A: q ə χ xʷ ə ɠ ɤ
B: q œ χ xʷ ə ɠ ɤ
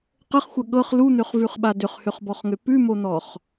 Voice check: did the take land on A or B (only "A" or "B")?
A